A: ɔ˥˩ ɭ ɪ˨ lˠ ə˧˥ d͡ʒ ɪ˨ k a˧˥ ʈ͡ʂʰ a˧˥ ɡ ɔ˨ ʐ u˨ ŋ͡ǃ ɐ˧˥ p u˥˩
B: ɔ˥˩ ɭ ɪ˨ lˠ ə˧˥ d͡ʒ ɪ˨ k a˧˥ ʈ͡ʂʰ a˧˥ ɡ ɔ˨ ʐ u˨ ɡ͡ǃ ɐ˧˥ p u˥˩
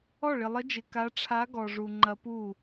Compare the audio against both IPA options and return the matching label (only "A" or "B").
A